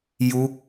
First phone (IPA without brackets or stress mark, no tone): j